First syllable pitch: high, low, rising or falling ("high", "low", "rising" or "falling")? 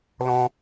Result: high